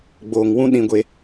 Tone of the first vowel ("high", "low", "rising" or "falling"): low